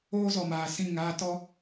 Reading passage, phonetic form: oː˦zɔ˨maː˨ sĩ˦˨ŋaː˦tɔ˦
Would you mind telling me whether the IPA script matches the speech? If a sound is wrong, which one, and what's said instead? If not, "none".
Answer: none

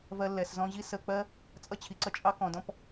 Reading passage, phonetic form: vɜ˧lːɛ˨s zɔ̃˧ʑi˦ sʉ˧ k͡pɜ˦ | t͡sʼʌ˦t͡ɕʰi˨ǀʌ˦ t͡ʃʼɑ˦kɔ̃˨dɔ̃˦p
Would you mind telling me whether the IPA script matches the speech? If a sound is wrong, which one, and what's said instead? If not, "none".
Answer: ʉ˧ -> ə˧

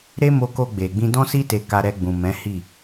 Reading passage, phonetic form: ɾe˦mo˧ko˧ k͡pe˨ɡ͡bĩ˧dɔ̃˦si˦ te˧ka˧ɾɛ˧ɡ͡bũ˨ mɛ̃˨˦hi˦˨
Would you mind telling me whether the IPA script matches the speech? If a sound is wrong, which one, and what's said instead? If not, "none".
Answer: k͡p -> ɡ͡b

